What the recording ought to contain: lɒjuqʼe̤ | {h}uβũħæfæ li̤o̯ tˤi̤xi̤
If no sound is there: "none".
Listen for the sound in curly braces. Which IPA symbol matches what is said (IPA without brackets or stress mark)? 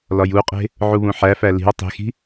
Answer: ʕ